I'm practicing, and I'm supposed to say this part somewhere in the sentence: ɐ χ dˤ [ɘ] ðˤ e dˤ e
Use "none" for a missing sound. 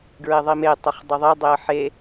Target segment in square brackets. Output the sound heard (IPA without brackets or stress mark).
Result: ɘ